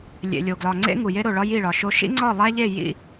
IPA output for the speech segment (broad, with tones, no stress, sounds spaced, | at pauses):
lʲ ḛ˨ lʲ o˨ ɡ l ɒ˨ ŋ͡ǀ ḛ˦ ŋ u˨ j e˦ ɾ o˨ ɭ ɒ˦ j i˦˨ ɭ ɒ˨ ʃ o˦ ʃ ḭ˦ ŋ͡ǀ ɒ˦˨ lˠ æ˦ ʎ e˦˨ j ḭ˦